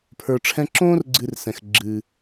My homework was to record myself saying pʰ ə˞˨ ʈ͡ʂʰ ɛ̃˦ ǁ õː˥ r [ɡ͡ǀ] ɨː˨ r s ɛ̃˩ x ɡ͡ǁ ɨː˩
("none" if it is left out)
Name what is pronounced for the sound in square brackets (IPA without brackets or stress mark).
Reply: ɡ͡ǀ